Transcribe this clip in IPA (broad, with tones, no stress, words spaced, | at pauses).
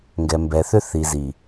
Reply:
ŋɡɛ˨mbɛ˨θʏ˦ θi˨zi˨